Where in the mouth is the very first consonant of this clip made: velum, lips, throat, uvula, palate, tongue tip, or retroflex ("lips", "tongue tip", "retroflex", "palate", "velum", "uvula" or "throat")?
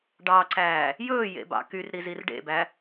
retroflex